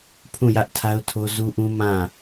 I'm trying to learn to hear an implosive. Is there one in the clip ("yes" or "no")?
no